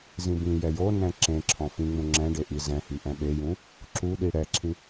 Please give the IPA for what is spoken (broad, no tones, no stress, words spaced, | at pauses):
zĩbĩjɛ jonɛ̃ ǁẽ ǁʰɔ̃fĩŋ͡mũ ŋ͡ǁɛ̃ ɖeʔizɛ̃hi ʔɛ̃ɓejũ | ǁuɗi ɽɛǁʰĩ